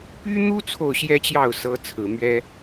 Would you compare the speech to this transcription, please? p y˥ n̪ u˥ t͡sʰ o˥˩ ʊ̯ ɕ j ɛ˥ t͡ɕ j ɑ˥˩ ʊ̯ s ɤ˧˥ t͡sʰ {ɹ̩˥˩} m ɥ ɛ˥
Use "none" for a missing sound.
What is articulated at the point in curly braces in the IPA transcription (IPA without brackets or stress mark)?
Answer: ɹ̩˨˩